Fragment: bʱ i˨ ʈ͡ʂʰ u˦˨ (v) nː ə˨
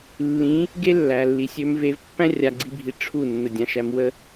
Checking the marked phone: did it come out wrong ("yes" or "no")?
yes